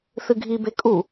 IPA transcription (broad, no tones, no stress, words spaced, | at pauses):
θɨɡʱibe kʼu